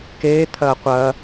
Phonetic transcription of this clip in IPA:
k eː t̪ʰ ɐː qʷ ɐː

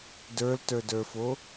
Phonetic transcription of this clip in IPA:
d ə˞ l t ə˞ d ə˞ f o

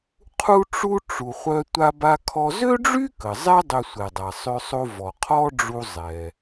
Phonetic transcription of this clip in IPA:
qʰ u˧ ʈ͡ʂ u˧ ʈ͡ʂ u˩ χʷ œ˧ tʷ a˧ b a˧ kʰ ɔ˧ z ø˥ ɖ͡ʐ y˥ k ə˩ zˤ ɛ˥ dˤ ø˧ sʷ ɛ˩ dˤ a˩ sˤ ø˧ sˤ o˧ v ɔ˩ qʰ ɔ˥ ɖ͡ʐ u˧ zˤ ɛ˩

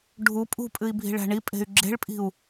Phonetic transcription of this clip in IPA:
ɖʱ u pʼ ṳ pʼ ɨ i̯ bʱ i̤ ɭ æ̤ ɳ i pʼ e̤ y̯ ɡ͡ǁ e̤ ɭ pʼ i̤ u̯

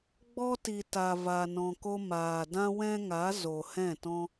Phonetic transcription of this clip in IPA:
ɡ͡b ɔ˧ t i˨ t a˨ v a˨ n ɔ̃˨ k o˧ m aː˨ d ã˧ w ɛ̃˦ ŋ a˨˦ z o˨ h ɛ̃˦˨ t ɔ̃˦

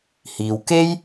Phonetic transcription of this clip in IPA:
h iː˨ w k e˥ j

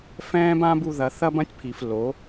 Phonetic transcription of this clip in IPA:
f ɛ̃ː˦ b ã˦ b u˧ ð ɐ˧ θ ɐ˦ b ɐ̃˦ tʲ pʰ i˨ f l o˨˦

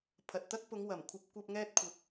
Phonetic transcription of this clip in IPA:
pʰ ɐ˨ t̚ t̪ ɐ˥ k̚ p ʊ˨˧ ŋ w ɐ˨˩ m kʷʰ ɐ˧ p̚ kʷ ɐ˧ p̚ ŋ ɛː˥ t̚ kʷʰ ɐ˧ k̚

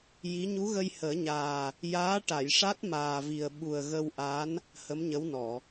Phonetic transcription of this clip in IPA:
j i˧˥ ɲ u˧˥ ɣ ə˧ j h əː˨˩˦ ɲ aː˨˩ | j aː˧˥ ʈ a˨˩˨ j ʂ a˦˥ t̚ m aː˨˩ v i˨˩ ə̯ ɓ u˨˩ ə̯ ɣ ə˧ w ʔ a˧˥ n | h ə˧˥ m ɲ ə˧˥ w n ɔ˨˩˨

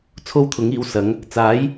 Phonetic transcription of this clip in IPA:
t͡sʰ o˥ w t̪ʰ ʊ˨˥ ŋ iː˨˥ w s ɐ˨˥ ŋ | t͡s aː˨˥ j

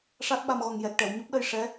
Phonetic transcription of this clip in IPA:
ʂ a˦˥ t̚ ɓ a˧ m ɣ ɔ˨˩ ŋ j ɛ˨˩ k̚ ʈ ɛ˨˩˨ w ɲ o˦˥ p̚ ɗ ə˧ j ʂ ɛ˧˥

